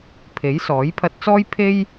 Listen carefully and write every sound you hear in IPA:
pʰe˨˥jsɔː˨˥jpʰɐ˧t̚t͡sɔː˥j pʰe˥j

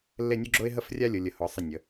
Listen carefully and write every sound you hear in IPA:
lːe˥˧nʲu˥ɡ͡ǁʊ˥ɪ̯ ɦə˥frʲa˥lʲʊ˩˧ lʲə˩˧hʊ˩˧ sˤə˧˩ nʲə˩˧

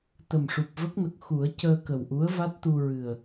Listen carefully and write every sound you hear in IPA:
t̪ə˨˩mʂu˨˩p̚və˦˥k̚nə˨˩k̚ xu˨˩˦ə̯ cəː˧kə˨˩wʔu˧˥ə̯ va˦˥t̚t̪u˧ ɹɨ˨˩ə̯

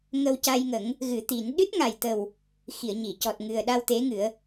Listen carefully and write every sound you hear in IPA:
ŋə˧wca˧jŋə˨˩˦ŋ | ɣɨ˨˩˦t̪i˨˩˦n ɗɨ˦˥t̚ŋa˨˩j t̪ə˨˩w | xi˨˩˨ə̯ɲi˨˩˨ cɔ˨˩t̚ŋɨ˨˩ə̯ɗa˧w t̪e˧˥ŋɨ˨˩˦ə̯

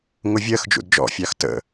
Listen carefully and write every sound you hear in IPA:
ŋʊvʲɜxd͡ʒṵd d͡ʒɔ̰fʲɑx tə̰

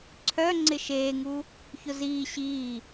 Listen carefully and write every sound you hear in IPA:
ǀʰœ ŋ͡ǀɪʃeːŋu | çʊziː ɕiː

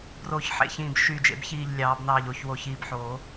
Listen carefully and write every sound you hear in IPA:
broː˧˩çħḛ˧˩çĩː˧˩b ʃy˧˩d͡ʒḛ˨˩˦bçiː˧˩ʎ lʲɑː˨˩˦bnɑː˧˩ʎo˨˩˦ç wo˧˩çiː˧˩bħoː˨˩˦

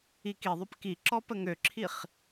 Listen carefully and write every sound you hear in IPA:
ikiðˤøp kiǁɔ pəŋøǁʰiχ

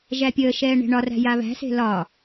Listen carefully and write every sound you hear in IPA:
ʒæpʲəːʃɛː ɳe̤ɳɒræ̤ jaβæ̤se̤ lɒ

